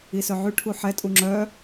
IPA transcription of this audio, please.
i s œ ʕ y ʈʰ u ħ ɛ tʼ u ŋ͡ǁ œ

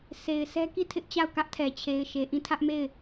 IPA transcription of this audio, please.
s e˨ ɪ̯ sʰ ɛ˦ k i˦˨ tʰ ɪ˦ ʔ t͡ɕ a˦˨ ʊ̯ k ä˦ ʔ tʰ ɛ˨ t͡ɕʰ e˨ ɪ̯ ʃ e˨ ʔ ĩ˦˨ tʰ ä˦ ʔ m e˦˨ ɪ̯

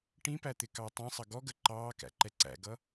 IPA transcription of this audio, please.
ʈ ĩ p æ t̪ ɪ k ɑ tˤ ĩ sˤ ʌ ɡ ɔ ɡ ə ǃ ɑː k æ̰ ǃ ɛ ǀ æ̰ ɡ ʌ

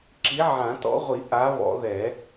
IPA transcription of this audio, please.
ǁ i˨˥ ʕ ã˨˩˦ t ɔ̰˨˥ ʁʷ i˨˩˦ ʔ a˨˥ β ɔ̰˨˩˦ ð ɛ˨˩˦

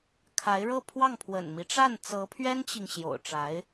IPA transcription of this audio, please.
kʰ a˧˥ ɪ̯ ɻ ɤ˥˧ pʰ w ɑ˥˩ ŋ pʰ w ə̰˨˩ n m i˦ ʈ͡ʂ a˥˩ n t͡s ɤ˧˥ pʰ ɥ ɛ˥ n t͡ɕ i˨ ŋ ɕ j o̰˨˩ ʊ̯ ʈ͡ʂ a˧˥ ɪ̯

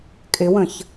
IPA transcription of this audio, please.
kʼ ɪ w ə̃ ç

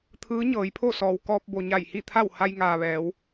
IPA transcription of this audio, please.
t̪ʰ ɯː˧˥ ɲ ɤː˩˧ j pʰ o˥˨ s ɔː˩ w k ɔː˧ p̚ b o˩ ɲ a˧˩ j h i˥˨ t̪ʰ a˥˨ w h a˧ j ŋ aː˩ ʋ ɛː˩˧ w

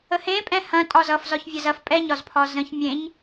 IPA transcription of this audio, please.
ə h ẽ pʼ ɛ̃ h ɐ̃ tʼ ɒ z ʌ f z ɒ ç vʲ ɐ z ɐ f pʼ ɛ ɲ ɒ z pʰ ɒ z ə̃ ç mʲ ẽ ɲ

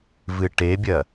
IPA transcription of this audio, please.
v ɨ ʈ e bʲ ɐ

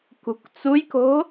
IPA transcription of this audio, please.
k ṳ k t͡s u j k o̤

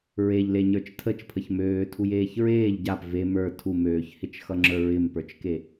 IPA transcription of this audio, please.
ɹ e ʎ l e ɲ ə˞ t͡ʃ tʰ ə t͡ʃ pʰ ə ç m øː tʰ u j eː ç ɹ eː ʎ ɟ a p v e m ə˞ tʰ u m øː ç h ɪ t͡ʃ x ʌ ŋ͡ǁ ə˞ ɹ ɪ m p ə˞ t͡ʃ k e

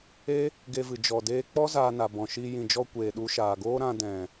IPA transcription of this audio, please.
e˦ | ɡ e˧ v ɨ˨ d͡ʒ ɔ˨ d eː˧ k͡p ɔ˦ z aː˧ n a˨ b ɔ̃˨ ʃ i˧ j ĩ˨ d͡ʒ ɔ˧ kʷ eː˨ ɗ u˧ ʃ aː˨ ɡ oː˦ ɾ ã˧ d ɛ̃˨

